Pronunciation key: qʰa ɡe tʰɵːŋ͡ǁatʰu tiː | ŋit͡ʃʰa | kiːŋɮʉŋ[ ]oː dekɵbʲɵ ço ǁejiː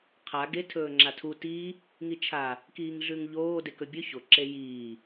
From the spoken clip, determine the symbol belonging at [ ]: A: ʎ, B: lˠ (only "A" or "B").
A